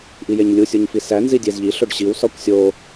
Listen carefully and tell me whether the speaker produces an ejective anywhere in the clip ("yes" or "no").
no